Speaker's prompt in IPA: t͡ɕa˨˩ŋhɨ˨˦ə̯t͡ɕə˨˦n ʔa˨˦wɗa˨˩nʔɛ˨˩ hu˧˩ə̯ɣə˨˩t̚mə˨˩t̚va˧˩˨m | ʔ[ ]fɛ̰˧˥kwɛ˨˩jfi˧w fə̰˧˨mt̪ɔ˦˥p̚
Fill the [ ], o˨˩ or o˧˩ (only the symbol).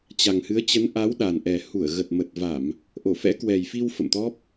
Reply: o˧˩